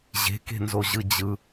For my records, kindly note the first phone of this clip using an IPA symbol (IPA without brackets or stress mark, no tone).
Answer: ʑ